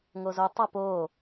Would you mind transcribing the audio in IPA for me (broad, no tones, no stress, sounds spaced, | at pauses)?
ŋ o z o tˤ ʌ p oː